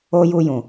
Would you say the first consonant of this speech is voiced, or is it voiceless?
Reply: voiced